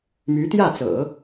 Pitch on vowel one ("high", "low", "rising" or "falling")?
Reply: rising